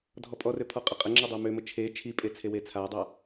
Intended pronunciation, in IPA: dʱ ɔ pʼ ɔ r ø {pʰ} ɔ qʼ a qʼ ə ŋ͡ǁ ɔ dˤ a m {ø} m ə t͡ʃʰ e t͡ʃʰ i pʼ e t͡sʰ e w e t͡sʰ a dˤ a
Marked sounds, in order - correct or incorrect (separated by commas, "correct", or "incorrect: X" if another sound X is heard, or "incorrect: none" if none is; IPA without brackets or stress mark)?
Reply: correct, correct